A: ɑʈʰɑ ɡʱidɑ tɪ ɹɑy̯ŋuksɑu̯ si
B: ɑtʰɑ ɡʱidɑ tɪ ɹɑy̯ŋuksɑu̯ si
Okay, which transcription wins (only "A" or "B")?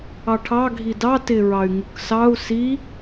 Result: A